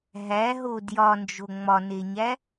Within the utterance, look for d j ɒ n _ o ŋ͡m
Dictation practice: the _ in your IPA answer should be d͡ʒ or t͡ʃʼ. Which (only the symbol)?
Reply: d͡ʒ